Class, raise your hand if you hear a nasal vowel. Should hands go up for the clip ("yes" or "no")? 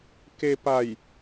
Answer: no